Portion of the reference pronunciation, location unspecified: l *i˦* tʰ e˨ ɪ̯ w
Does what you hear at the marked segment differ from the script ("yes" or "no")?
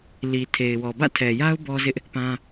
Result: yes